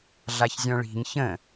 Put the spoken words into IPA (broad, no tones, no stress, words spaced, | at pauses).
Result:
ɮaçzʲɔ̃ɭi̤ɲ çə̃